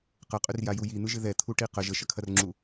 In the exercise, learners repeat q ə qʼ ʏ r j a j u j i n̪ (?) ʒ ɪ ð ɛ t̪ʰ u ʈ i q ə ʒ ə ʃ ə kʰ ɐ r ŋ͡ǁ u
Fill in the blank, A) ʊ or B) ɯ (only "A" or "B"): B